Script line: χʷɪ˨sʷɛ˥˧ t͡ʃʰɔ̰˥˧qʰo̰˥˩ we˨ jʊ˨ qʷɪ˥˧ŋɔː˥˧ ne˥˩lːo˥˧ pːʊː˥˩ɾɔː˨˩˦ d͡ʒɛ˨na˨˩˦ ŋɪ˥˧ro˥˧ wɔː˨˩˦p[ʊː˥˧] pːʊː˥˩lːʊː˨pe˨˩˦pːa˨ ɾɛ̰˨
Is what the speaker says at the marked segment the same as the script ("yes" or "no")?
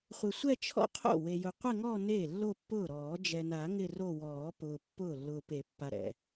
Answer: no